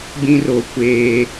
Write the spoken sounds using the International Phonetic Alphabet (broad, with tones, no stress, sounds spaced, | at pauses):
ɡ͡b ĩ˦ r o˨ kʷ eː˦